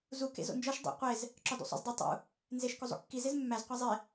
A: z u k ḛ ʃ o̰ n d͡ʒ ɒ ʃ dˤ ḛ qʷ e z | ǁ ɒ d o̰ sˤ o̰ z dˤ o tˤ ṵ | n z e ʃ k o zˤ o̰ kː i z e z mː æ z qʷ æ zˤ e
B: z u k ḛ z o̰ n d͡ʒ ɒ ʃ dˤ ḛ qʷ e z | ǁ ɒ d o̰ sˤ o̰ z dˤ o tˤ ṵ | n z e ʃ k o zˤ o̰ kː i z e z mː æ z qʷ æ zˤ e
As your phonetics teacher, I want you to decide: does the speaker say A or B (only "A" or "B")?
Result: B